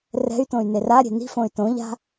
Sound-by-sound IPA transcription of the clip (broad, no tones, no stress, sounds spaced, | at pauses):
r ɛ̤ y̯ t õ y̯ n e r a ɾʲ e̤ n i̤ f õ y̯ t õ ʎ a̤